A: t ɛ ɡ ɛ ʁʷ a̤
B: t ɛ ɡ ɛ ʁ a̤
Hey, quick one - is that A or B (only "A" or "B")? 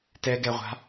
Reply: A